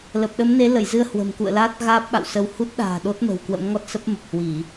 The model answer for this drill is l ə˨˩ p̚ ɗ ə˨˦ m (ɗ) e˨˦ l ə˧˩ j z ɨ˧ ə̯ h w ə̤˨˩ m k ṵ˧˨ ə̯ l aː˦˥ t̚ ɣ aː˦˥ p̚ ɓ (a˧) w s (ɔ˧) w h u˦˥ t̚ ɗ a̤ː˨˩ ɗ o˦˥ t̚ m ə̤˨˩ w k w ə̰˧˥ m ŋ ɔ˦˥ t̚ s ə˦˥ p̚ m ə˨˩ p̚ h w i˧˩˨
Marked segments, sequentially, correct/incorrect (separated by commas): incorrect, incorrect, incorrect